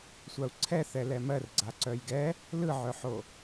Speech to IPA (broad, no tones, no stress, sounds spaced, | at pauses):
sʷ a u̯ ǀʰ ɛ θ ɛ l ɛ m ɜ r ɡ͡ǀ a ǀ œ j ɡ ɛ | l ɯ ʕ œ ħ o